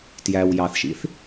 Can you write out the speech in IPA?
tjæw jɑθʃḭθ

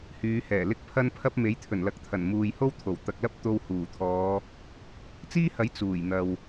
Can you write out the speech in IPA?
hyː˨˧hɛː˨˩ lɪ˥k̚pʰɐ˥npʰɐ˥p̚ me˨˥jt̪ʰɵ˨˩nlɐ˨k̚t̪ʰɐ˨˩n muː˨j ho˥w t̪ʰo˨˩wt̪ɐ˨k̚lɐ˥p̚ t̪o˧whuː˨˩t̪ʰɔː˨˧ | t͡siː˥hɐ˨˥j t͡suː˨˩jn̪ɐ˨w

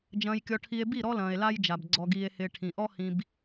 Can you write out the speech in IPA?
d͡ʒɐ̃ː˧jkʲɔ˧ʈʰi˧e̯ bi˦˨ ɾɔ˦lɐ̃ː˨e̯la˦jd͡ʒa˨b ɡ͡ǀɔ˧ɡiː˧e̯hɪː˧ ʈʰĩ˨ʔɔ˦hĩ˧b

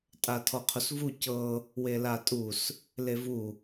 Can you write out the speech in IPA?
tʼatʰɔqʰusvu cɤ | welatʼus | levu

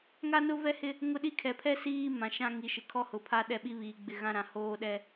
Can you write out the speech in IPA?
ŋa˦nʊ˦vɛ˦hɪ˦ | ŋʊ˦ɗi˦ kʰɛ˨pʰɛ˦ siː˦ mã˨ ʃã˦ŋi˨ ʃɪ˨kʰɔ˦hʊ˨pʰa˦ ɗɛ˦ɓi˦βiː˨ɡ͡bɪ˦˨ ɣã˦ ɾã˨hoː˦ɗɛ˦

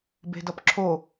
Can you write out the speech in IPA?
be̤dʌpǁʰo

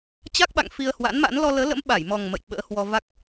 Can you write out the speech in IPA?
t͡ɕa˦˥k̚ɓa̰˧˨ŋ fi˧ə̯hwa̰˧˥nma̰˧˥n lɔ˧ləː˨˦lə̰˧˥m ɓa˧˩jmɔ˨˩ŋ mə̰˧˨j ɓə̰ː˧˥hwɔ˧va˦˥k̚

